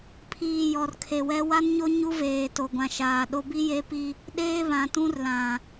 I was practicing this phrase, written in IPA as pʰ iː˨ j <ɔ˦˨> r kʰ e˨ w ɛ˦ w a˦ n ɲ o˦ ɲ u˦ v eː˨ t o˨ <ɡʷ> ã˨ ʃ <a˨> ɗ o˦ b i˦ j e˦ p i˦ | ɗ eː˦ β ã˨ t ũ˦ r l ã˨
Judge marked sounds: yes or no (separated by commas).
no, yes, no